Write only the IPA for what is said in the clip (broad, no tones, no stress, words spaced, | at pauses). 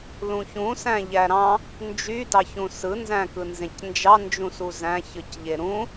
lũçũ sæ̃ʎæɾɑ̃ | nd͡ʒydɑçũ sɯnzæ̃kɯnzẽc nd͡ʒɑnd͡ʒũsu zæ̃çɯcʎe ɾũ